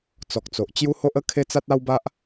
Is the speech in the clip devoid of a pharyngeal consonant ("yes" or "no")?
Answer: yes